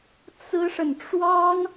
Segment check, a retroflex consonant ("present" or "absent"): present